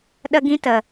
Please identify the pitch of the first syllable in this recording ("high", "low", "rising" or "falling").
high